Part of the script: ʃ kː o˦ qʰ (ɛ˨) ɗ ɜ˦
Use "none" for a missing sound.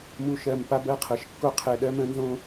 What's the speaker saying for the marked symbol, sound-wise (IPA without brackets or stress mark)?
ɛ˨